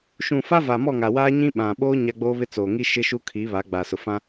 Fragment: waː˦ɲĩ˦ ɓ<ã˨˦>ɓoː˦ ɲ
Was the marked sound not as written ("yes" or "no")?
yes